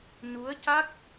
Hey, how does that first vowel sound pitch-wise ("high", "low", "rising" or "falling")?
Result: rising